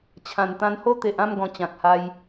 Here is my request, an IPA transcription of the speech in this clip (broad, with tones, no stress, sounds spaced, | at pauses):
t͡ɕʰ ã˨˩ n t̪ ã˧ n h o˦ t̪ e˨ ʔ ã˥˧ m ɡ ɔ̃˨˩ t͡ɕ ã˨ k̚ h a˧ j